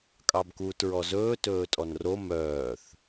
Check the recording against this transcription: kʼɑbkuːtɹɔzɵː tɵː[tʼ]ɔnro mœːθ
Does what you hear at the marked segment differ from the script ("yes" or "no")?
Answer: no